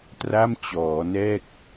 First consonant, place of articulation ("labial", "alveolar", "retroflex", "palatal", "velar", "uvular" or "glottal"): alveolar